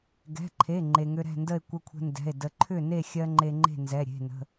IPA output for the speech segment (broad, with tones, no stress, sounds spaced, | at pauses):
ɡ ɛ̤˩˧˩ ǃʰ e˩˧˩ ŋ͡ǃ e˩ ŋ ʏ˧ ɾ ɛ̤˥˨ n d ə˥˨ e̯ kʷ ə˧ kʷʰ ə̤˧ n d ɛ̤˩˧˩ e̯ d ə˧ ǃʰ ʏ˥˨ n e˥˨ xʲ ɜ˧ ŋ͡ǃ e˧ ŋ͡ǃ e̤˥˨ n z ɛ˩˧˩ ɾʲ e̤˩˧˩ n ə̤˩˧˩